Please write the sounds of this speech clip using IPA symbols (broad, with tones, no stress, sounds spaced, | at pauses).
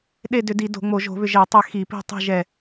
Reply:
ɗ e˦˨ d ʏ˧˩˧ d i˧˩˧ d o̤˧˩˧ ŋ͡m o˧˩˧ ʒ o̤˧˩˧ β ʏ˦˨ ʒ ɛ˧˩˧ tˤ ɛ˦˨ x i˧˩˧ p i̤˦˨ tˤ i̤˦˨ ʒ ɛ˦˨